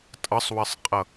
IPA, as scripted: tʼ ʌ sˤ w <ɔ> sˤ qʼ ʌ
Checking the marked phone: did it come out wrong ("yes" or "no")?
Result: yes